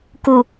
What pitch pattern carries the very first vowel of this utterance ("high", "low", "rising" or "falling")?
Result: low